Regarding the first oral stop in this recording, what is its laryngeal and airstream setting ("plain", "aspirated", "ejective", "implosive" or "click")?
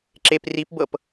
click